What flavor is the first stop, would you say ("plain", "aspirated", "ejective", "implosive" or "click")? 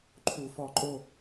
click